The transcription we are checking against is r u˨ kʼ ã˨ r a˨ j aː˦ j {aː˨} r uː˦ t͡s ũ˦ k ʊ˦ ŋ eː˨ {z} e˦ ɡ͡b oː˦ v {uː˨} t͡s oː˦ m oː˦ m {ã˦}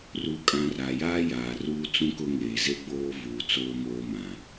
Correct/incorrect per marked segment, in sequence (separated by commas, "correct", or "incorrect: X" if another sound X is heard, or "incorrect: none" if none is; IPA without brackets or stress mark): correct, correct, correct, incorrect: ã˨